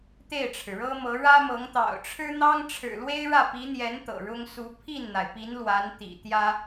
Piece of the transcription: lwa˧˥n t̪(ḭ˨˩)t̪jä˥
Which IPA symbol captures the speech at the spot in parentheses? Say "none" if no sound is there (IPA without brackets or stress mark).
ḭ˨˩